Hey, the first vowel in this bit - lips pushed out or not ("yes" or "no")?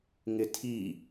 no